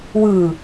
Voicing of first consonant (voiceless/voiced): voiced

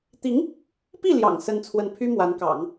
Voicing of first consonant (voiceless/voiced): voiceless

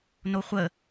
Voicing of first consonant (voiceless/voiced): voiced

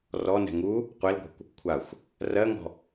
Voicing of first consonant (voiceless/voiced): voiced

